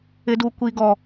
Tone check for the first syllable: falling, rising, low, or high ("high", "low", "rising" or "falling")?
high